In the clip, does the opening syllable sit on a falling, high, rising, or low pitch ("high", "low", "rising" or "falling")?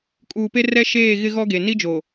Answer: low